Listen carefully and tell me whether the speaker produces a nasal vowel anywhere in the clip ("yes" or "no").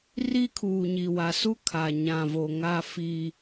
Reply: yes